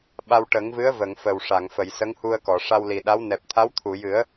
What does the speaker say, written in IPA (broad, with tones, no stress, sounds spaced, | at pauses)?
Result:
ɓ a˧ w ʈ ə˨˩˦ ŋ v ɨ˧˥ ə̯ v ə˨˩˨ ŋ f ə˨˩ w ʂ a˨˩˨ ŋ f ə˨˩˨ j s ə˧˥ ŋ h u˧ ə̯ k ɔ˨˩˨ ʂ a˧ w l i˨˩ ɗ a˧˥ w n ɛ˨˩ p̚ t̪ʰ a˧˥ w t̪ʰ u˨˩˨ j ɨ˨˩˦ ə̯